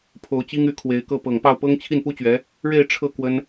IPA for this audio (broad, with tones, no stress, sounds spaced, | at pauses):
pʰ o˧˥ ʊ̯ t͡ɕ i˥ ŋ y˧˥ kʰ w e˧˥ ɪ̯ k ɤ˥˩ p ɤ˨˩ ŋ p ɑ˥˩ ʊ̯ p ɤ˥ ŋ t͡ɕʰ i˥˩ n p u˥ t͡ɕ ɥ ɛ˧˥ | ɻ e˥˧ ɪ̯ ʈ͡ʂʰ ɤ˥˩ k w ə˥ n